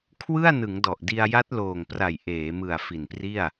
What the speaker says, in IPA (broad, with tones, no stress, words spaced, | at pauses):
kʰwɯ˥˩a̯nɯ˩˦ŋdɔ˨˩ʔdi˧a̯ ja˦˥t̚loː˨˩ŋpra˨˩j ʔeː˩˦ mɯ˨˩a̯ fi˨˩npri˥˩a̯